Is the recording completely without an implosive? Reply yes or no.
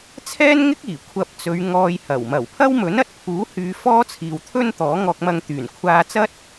yes